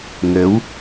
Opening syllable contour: rising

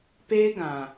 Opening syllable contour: high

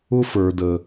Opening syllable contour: high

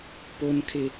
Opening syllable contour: high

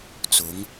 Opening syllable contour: rising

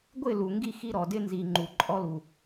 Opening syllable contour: falling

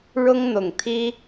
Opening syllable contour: high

